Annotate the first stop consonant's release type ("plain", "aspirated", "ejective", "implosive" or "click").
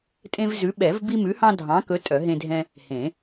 ejective